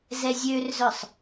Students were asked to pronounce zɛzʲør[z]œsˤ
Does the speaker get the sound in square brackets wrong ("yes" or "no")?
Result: no